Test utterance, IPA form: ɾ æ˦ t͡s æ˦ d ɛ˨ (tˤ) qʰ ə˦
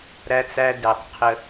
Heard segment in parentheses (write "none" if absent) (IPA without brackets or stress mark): tˤ